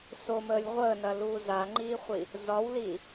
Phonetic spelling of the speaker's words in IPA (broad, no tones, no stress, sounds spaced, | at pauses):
s o m əː lʲ ʁʷ əː n ɐ l uː z a ŋ͡ǃ iː χʷ i | z ɒ w l i